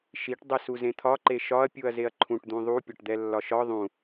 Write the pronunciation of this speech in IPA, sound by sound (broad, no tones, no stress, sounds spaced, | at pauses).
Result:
ʃ i ʈ dˤ i s u z ẽ t̪ʰ ɒ ǃ e ʃ ɒ ɐ̯ pʲ u ɐ̯ z e ɐ̯ ǃʰ ũ ʈ d̪ ũ ðˤ u pʲ ɒ ʈ d̪ ɛ lː ɒ ʃ ɒ ðˤ ũ